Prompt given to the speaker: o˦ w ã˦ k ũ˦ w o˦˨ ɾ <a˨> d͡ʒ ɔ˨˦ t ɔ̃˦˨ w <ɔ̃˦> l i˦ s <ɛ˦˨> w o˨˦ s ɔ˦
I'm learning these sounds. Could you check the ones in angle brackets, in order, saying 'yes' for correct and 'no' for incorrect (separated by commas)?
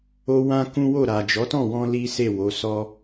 yes, no, no